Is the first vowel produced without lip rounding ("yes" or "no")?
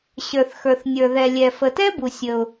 yes